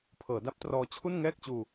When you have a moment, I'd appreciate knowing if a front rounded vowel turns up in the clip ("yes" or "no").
no